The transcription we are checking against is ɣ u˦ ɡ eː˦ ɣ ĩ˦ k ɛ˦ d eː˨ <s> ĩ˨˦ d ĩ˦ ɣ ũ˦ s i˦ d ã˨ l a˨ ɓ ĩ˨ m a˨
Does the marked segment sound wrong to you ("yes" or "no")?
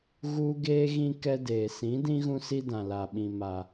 no